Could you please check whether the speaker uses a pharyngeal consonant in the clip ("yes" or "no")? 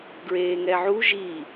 yes